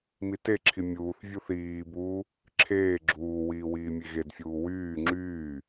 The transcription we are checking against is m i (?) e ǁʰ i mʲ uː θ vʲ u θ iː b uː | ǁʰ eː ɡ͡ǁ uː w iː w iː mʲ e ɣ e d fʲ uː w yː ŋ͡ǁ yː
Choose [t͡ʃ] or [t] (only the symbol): t